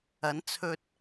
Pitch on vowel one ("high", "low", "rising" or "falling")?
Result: rising